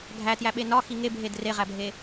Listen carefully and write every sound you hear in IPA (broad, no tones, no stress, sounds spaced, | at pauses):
ɡʱ æ t j æ ɓ e n ɒ x i ŋ e bʱ e d r e ʁ æ bʱ e